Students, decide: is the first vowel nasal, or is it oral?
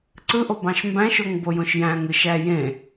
oral